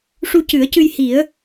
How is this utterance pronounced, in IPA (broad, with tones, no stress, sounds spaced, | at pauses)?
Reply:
ʂ u˧ c ɨ˨˩˦ ə̯ c ɨ˧ j h i˨˩˦ ə̯